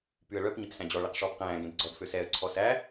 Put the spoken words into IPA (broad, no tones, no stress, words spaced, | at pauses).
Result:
pyə̯ɭœp ɲepsæ̃d͡ʑɔ ɭɛqʂɔːpqæ̃ː ɡẽdɡ͡ǀɔd føsɛə̯ ǀʰɔsæ